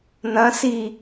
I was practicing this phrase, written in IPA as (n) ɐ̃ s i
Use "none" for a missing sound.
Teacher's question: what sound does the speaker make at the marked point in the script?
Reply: n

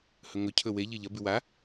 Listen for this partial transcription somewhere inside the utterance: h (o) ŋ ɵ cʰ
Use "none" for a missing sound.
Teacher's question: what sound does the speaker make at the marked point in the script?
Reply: ɵ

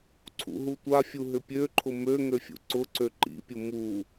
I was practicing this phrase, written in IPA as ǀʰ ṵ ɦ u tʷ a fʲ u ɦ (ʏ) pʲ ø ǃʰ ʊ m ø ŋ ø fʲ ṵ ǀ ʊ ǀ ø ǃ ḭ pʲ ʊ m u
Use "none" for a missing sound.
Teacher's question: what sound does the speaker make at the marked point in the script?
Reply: ʏ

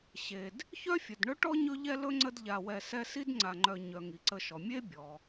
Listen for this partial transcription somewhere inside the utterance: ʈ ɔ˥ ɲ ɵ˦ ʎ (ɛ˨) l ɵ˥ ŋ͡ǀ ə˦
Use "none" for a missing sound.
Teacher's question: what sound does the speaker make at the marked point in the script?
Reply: ɛ˦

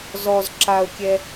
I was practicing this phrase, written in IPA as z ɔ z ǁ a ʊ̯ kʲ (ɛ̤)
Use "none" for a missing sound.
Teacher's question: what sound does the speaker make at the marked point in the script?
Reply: ɛ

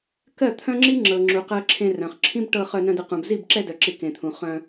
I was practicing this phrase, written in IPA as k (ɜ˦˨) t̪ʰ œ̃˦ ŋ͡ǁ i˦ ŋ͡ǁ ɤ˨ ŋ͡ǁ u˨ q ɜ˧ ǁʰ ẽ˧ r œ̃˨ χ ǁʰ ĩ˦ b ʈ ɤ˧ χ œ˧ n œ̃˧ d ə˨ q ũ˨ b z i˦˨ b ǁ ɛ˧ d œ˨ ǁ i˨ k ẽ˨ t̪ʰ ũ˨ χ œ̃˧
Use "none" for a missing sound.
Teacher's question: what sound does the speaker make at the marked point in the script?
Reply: ɜ˦˨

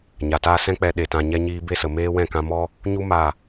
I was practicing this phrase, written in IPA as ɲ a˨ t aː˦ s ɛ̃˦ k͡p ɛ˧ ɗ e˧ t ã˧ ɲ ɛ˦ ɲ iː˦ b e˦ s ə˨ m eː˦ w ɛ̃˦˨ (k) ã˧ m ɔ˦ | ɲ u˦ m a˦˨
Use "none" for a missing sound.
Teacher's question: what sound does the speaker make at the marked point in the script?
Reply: k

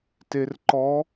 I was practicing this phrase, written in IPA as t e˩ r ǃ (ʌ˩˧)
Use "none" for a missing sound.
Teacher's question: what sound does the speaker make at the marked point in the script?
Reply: ɔ˩˧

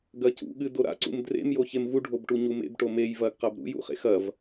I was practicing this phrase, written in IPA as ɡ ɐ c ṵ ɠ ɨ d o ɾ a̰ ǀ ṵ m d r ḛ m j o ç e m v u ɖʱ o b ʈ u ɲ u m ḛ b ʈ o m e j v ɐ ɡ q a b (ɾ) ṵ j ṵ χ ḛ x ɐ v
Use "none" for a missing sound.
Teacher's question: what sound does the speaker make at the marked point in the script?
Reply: ɾ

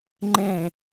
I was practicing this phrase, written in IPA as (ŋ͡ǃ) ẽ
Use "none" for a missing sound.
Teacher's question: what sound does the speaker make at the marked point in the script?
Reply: ŋ͡ǃ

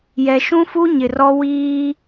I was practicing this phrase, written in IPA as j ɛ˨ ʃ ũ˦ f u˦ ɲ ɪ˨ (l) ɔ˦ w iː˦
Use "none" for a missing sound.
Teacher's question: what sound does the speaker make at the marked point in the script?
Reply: r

